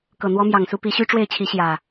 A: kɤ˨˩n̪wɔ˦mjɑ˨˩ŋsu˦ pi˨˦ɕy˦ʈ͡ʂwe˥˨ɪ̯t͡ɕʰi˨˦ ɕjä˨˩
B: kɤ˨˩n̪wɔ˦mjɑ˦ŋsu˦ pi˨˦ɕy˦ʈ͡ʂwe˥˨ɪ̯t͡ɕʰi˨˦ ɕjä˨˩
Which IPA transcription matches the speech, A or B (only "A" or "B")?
A